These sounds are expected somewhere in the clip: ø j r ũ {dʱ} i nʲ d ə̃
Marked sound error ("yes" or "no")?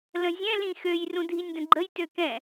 no